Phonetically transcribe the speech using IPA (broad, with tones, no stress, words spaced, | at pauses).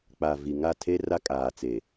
k͡pa˨ vi˨ŋa˦˨tʰe˦ ra˦kʼaː˨t͡se˨